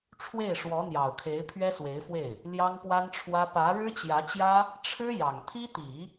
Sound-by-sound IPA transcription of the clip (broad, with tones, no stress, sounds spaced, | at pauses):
ʈ͡ʂʰ w e˥˩ ɪ̯ ʂ w ɔ˧˥ n̪ j ɑ˨˩ ʊ̯ kʰ e˧˥ ɪ̯ pʰ ɥ ɛ˥ s w e˧˥ ɪ̯ f w e˥˩ ɪ̯ | l j ɑ˥ ŋ p w a˥ n ʈ͡ʂʰ w ä˥ p ä˧˥ ɻ ɻ̩˥ t͡ɕ j ä˧˥ t͡ɕ j ä˥ | ʈ͡ʂʰ ɻ̩˥ j ɑ˨˩ ŋ t̪ʰ i˥ t̪ i˨˩˦